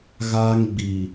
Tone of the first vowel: high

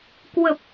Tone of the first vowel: low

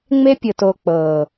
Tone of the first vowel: high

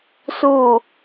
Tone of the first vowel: falling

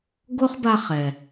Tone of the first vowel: high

